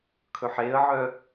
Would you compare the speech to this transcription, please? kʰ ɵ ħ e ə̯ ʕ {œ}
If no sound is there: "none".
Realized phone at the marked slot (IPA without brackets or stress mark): œ